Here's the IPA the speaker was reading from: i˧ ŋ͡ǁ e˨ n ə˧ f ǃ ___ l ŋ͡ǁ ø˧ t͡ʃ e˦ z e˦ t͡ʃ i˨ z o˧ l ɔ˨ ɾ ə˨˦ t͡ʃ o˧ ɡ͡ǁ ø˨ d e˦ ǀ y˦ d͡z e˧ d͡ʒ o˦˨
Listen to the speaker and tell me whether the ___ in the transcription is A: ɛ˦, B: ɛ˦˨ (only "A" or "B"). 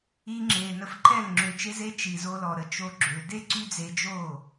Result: B